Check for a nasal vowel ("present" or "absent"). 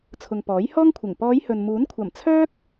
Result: absent